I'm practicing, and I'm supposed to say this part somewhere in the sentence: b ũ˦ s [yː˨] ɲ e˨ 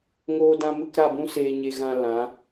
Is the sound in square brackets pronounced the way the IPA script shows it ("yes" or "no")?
no